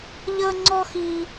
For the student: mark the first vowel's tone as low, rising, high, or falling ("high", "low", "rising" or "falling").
high